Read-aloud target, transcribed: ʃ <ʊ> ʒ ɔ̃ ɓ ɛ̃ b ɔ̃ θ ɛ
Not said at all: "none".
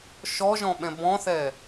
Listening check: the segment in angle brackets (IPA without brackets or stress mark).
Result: ɔ